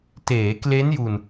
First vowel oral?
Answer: yes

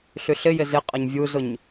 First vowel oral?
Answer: yes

